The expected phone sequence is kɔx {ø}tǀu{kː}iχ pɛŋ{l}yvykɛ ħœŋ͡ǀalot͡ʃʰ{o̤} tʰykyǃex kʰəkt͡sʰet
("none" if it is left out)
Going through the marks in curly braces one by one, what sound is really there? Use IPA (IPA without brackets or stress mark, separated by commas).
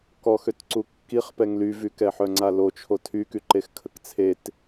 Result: ø, kː, l, o